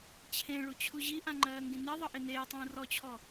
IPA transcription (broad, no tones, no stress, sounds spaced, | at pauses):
t͡ɕʰ ẽ ɭ u t͡ɕʰ u ʑ i ʔ ã ŋ͡ǃ ɜː ŋ ɡ ĩ n e ðˤ ʌ ʔ e n eː tˤ ũː r ɔ t͡ɕʰ ɔ